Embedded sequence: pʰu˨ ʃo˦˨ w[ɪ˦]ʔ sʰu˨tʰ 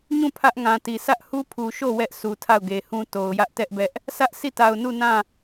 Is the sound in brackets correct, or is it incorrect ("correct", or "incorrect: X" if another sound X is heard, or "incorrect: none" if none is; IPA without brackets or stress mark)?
incorrect: ɛ˦